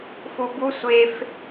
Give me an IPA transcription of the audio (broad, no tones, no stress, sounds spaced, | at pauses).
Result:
f u b u sʷ e f